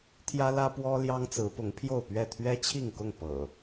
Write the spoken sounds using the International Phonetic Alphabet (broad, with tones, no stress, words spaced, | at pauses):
t̪ʰjä˦lä˦pwɔ˦ ljɑ˦ŋt͡sɹ̩˨˦ pʊ˨˦ŋpʰjo˥˨ʊ̯pɥɛ˥˨ t̪ʰɥɛ˦t͡ɕʰi˥˨ŋkʊ˥˨ŋ pɤ̰˨˩